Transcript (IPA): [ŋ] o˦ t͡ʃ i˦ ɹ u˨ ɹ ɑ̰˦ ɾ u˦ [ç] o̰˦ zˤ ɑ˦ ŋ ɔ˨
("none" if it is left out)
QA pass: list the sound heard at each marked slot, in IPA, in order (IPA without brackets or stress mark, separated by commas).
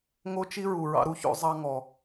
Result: ŋ, ç